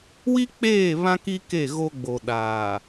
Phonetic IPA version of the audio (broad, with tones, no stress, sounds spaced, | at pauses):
w i˦ k͡p eː˦˨ β ã˦ k i˦ k e˦˨ ɣ o˦ ɡ͡b o˨ ɗ aː˨